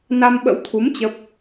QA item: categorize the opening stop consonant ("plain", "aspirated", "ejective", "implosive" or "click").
implosive